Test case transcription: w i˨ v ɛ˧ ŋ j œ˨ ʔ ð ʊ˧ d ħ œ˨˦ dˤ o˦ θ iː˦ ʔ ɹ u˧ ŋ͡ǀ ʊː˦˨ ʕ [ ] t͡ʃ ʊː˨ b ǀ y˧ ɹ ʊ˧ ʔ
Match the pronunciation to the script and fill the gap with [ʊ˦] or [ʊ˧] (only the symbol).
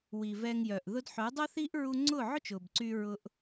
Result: ʊ˦